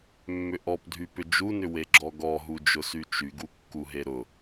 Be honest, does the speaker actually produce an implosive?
no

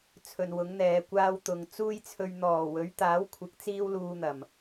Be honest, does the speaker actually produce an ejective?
no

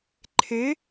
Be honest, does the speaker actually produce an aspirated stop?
yes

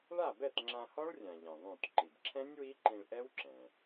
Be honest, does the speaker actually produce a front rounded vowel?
no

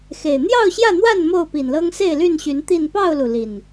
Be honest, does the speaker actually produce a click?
no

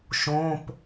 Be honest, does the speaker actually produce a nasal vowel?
yes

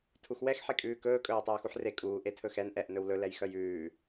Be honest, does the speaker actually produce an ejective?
yes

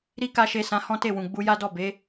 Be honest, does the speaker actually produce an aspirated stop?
no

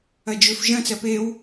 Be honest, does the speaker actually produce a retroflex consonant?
no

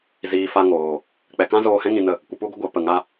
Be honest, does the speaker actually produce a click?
no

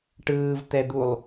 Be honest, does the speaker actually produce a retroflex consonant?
yes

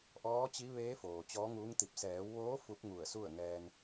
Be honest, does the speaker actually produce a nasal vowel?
no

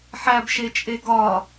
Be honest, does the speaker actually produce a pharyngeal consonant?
yes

